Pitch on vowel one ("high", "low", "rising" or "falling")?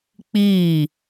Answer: falling